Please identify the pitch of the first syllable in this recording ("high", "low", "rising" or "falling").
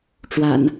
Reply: low